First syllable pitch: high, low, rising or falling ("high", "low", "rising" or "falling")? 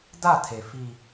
falling